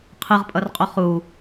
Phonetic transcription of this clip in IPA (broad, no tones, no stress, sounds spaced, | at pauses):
qʰ ɯ ʁ pʼ ʌ r qʼ o χ u